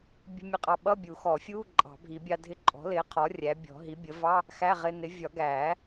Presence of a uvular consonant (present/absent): present